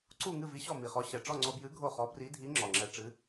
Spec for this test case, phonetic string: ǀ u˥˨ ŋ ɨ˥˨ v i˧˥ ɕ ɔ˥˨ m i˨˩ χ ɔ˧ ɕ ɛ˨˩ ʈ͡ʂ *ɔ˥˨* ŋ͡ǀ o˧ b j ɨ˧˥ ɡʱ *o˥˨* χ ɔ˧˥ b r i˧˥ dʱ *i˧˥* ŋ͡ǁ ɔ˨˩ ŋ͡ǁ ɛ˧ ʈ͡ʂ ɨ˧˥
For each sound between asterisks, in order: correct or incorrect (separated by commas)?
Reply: correct, correct, correct